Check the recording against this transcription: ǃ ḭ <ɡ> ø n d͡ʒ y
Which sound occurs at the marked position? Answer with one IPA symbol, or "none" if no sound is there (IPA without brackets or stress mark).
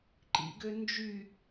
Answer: ɡ